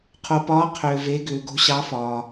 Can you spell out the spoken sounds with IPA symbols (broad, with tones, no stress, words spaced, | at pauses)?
qʰo˧pɒː˧˥ qʰʏː˧ve˧˥ɡʏː˧ ɡo̤˧˥ɕɑ˧˥fɒː˧